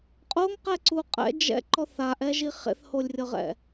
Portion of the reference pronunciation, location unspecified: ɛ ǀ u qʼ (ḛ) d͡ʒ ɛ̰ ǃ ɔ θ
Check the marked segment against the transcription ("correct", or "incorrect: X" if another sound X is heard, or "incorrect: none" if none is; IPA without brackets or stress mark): incorrect: ɛ̰